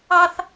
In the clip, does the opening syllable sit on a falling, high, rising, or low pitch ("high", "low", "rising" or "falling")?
high